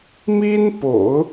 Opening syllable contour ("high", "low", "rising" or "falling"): high